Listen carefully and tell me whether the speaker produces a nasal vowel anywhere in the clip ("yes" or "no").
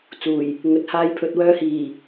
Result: no